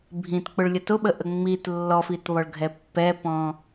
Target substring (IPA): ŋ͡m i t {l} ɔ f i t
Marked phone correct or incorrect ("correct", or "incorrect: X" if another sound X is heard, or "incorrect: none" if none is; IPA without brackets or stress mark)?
incorrect: lː